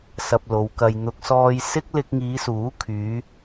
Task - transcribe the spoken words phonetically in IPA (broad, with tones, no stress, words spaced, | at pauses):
sɐ˧p̚lo˨˧wkɐ˧j n̪ʊ˨k̚sɔː˧j sɪ˥k̚lɪ˧k̚ŋiː˨˧suː˨˥ kʰyː˨˧